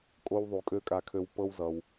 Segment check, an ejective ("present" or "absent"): present